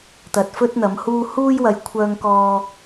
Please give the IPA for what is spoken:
t̪ ɐ˨ t̚ f ɵ˥ t̚ n̪ ɐ˨˧ m h uː˥ h uː˥ j w ɐ˧ j kʷʰ œː˥ ŋ k ɔː˥

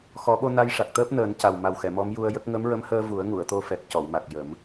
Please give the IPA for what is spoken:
x ɔ˨˩˦ ɓ o˧ n a˧ j ʂ a˨˩ k̚ t̪ əː˦˥ p̚ n əː˨˩˦ n c a˨˩ w m a˨˩ w x ɛ˨˩˨ m ɔ˧˥ m j u˧ ə̯ j ə˦˥ k̚ ŋ ə˧˥ m ɹ ə˧˥ m h əː˧ v u˨˩˦ ə̯ ŋ u˨˩˨ ə̯ t̪ o˧ f ɛ˨˩ k̚ c ɔ˨˩˨ w m a˨˩ k̚ j ə˨˩˦ m

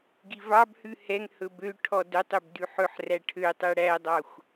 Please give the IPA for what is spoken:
ɡ i v ɑ b h ʉ h ɛ ŋ h ɵ b ø ʈʰ ɔ d œ tˤ ø b d ʉ ħ ɵ ħ r æ ʈʰ ø tˤ ɛ ɽ æ dˤ ɑ xʷ

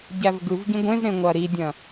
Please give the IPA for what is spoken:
ɟ æ v ɡ ɯ v ɟ ĩ ɡʷ ẽ v ɾ ẽ ŋʷ ɐ ɾ i dʲ ɐ̃

